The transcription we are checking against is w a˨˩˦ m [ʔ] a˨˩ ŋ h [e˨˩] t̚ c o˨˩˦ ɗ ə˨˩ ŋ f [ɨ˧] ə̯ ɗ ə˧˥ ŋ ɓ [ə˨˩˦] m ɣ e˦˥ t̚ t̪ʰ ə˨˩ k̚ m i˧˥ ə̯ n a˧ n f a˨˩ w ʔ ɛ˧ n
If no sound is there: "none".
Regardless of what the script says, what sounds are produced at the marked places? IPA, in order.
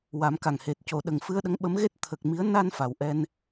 k, e˨˩, ɨ˧, ə˧˥

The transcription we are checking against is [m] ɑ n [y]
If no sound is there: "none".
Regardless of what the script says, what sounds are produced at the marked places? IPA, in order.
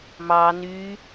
m, y

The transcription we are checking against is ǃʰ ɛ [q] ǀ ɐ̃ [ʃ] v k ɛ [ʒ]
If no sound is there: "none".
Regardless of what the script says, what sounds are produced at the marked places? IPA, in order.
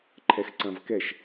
x, none, ʃ

